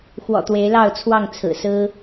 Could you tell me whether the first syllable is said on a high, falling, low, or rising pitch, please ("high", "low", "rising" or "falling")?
low